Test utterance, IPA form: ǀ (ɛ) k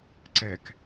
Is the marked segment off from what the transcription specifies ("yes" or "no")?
no